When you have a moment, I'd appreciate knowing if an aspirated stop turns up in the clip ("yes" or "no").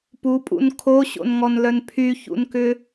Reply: yes